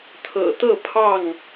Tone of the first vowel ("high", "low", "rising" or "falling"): low